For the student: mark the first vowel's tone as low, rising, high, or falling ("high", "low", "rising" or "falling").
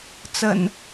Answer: low